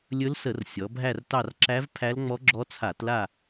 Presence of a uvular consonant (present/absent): absent